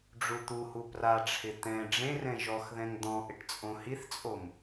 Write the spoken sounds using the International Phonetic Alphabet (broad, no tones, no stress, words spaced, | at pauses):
ɖ͡ʐut̪uhu praʈ͡ʂʰɪ t̪ɛ̃ ɖ͡ʐẽrɛ̃ ʒɔxðɛ̃ŋ d̪ɔ̃ ʔɪʈt͡sʼõhiθt͡sʼom